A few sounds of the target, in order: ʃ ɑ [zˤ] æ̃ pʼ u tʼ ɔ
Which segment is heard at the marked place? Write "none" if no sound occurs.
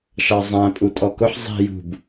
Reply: zˤ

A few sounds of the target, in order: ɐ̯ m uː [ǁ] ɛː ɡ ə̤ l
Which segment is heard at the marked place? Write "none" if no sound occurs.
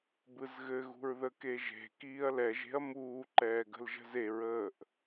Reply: ǃ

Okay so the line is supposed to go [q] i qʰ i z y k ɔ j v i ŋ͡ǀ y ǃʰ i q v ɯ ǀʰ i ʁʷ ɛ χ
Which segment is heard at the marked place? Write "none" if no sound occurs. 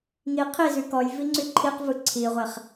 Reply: ŋ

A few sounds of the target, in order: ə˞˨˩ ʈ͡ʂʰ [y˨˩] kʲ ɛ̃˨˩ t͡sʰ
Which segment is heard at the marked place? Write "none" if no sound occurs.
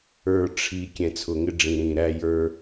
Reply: i˨˩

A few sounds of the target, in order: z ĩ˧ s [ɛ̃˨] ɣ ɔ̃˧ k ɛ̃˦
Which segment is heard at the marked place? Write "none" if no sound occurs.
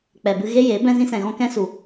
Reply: ɛ̃˨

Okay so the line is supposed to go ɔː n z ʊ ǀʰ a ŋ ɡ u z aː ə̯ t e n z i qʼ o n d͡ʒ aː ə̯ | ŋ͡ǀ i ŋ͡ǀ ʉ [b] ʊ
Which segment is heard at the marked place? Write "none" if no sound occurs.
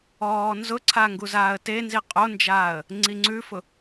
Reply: f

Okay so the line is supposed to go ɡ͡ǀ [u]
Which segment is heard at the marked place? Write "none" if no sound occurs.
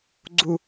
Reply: u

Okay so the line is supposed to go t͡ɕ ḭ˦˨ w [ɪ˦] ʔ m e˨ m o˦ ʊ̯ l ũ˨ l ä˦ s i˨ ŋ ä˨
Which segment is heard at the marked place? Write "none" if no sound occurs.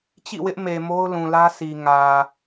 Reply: ɪ˦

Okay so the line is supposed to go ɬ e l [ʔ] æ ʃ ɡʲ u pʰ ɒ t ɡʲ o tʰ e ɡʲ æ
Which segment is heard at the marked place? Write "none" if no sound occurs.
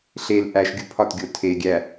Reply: ʔ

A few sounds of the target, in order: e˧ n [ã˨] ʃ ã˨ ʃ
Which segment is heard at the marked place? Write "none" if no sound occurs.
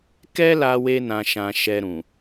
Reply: ã˨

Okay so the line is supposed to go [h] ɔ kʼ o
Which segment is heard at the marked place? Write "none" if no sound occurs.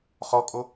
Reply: χ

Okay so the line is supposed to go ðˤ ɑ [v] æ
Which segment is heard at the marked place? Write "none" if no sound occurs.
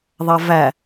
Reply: v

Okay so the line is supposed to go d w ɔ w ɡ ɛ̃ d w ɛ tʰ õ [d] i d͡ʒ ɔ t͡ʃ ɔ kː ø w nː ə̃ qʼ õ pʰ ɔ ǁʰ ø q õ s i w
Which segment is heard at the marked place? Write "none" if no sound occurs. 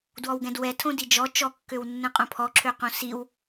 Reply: d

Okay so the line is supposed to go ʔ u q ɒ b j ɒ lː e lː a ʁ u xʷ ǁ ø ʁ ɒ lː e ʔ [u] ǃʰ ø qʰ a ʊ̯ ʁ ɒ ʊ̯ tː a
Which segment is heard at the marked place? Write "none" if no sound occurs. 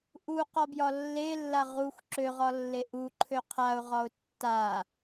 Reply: u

